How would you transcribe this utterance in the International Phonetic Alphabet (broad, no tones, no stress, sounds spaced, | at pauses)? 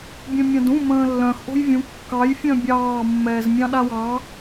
bʲ œ̃ mʲ ɑ̃ d ũ m ə̃ː lː œ̃ x ʔ o̤ j vʲ ũ kː ɑ j fʲ œ̃ bʲ ɑː mː ɛː z mʲ ɑ̃ ɗ a w ɑ